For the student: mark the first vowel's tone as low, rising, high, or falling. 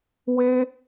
high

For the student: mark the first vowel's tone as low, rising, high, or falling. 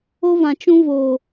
high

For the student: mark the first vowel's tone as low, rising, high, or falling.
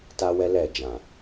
high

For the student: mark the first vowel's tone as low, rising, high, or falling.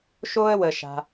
high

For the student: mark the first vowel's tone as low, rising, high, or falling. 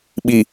low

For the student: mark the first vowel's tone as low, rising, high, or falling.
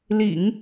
low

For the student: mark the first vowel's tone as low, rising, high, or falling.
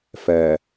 low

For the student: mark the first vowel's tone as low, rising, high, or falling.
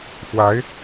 rising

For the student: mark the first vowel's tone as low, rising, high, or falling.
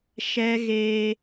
high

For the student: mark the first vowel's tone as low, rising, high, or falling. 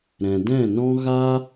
low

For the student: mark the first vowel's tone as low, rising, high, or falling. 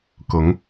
rising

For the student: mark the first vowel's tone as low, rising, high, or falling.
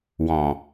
low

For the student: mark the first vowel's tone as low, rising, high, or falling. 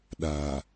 low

